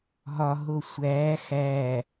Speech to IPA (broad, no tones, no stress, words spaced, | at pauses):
ɦɒ ɦosʷæː xæ